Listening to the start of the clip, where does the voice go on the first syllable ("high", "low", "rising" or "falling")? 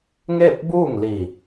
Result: falling